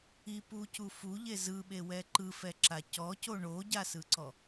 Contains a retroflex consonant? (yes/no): yes